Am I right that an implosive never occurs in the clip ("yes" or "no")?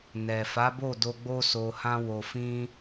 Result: yes